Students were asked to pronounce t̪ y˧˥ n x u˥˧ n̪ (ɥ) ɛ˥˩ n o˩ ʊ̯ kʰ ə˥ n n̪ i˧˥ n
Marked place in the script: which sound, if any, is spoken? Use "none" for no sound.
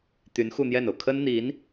j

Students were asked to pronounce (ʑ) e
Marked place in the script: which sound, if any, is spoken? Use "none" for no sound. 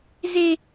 z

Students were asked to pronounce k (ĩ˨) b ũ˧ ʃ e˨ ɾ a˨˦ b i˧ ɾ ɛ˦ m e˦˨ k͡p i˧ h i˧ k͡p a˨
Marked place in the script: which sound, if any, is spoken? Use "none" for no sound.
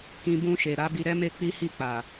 ĩ˨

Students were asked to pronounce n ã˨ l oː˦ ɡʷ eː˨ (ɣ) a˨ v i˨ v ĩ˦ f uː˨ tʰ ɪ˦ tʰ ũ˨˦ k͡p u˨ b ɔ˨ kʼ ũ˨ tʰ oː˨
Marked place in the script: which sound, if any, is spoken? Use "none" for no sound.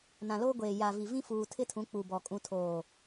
j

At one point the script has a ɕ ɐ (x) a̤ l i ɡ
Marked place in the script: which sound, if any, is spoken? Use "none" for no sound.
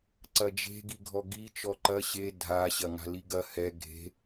ŋ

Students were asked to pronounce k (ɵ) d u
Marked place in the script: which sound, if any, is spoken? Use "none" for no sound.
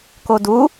o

